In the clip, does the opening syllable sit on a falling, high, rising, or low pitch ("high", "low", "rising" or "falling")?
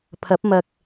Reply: rising